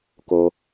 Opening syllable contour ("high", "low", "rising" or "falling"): low